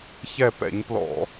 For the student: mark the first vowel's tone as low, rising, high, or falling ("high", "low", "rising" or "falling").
falling